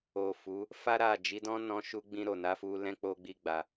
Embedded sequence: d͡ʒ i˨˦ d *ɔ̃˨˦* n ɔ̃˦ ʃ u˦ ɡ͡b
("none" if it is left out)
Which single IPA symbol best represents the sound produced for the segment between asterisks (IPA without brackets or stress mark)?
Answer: ɔ̃˦